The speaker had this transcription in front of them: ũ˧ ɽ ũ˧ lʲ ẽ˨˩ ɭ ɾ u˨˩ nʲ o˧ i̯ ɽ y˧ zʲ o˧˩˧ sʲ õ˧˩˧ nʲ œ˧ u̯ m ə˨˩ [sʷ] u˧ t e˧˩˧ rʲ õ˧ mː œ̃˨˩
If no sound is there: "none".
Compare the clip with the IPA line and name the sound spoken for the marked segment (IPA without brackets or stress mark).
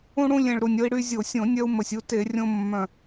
sʲ